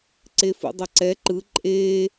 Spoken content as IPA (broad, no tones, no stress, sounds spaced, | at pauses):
ǀ e f ṵ dˤ ʌ ǀ ɛ ǃ ɯ ǃʼ eː